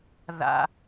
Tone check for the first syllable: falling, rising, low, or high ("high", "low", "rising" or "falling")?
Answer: high